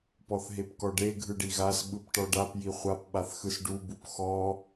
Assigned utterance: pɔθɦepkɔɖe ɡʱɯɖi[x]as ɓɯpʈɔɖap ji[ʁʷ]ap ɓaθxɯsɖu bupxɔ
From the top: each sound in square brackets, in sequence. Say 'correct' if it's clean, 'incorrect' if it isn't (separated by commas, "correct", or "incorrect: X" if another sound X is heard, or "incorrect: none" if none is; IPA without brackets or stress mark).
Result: incorrect: ɣ, incorrect: χʷ